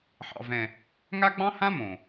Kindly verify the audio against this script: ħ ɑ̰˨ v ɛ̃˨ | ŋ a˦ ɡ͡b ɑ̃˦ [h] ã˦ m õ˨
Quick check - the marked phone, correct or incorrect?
correct